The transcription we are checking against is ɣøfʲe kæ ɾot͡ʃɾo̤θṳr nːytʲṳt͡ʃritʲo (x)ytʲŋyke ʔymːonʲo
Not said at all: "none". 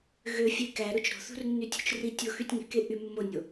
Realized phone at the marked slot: x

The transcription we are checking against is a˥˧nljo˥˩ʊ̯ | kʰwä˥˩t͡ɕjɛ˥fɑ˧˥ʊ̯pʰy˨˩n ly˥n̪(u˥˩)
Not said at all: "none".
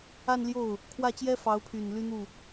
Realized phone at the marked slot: u˥˩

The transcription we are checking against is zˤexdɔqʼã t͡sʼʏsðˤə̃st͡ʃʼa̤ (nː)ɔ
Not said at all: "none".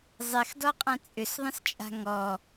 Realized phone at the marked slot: ŋ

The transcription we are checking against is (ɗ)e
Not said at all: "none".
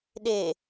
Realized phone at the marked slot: ɗ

